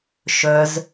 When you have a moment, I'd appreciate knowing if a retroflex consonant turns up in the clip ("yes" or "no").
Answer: no